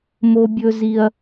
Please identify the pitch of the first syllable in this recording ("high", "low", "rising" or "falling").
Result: high